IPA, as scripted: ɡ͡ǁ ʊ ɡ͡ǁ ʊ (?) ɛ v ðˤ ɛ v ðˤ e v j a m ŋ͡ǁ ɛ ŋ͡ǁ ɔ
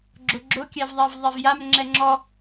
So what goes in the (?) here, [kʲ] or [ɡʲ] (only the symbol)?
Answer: kʲ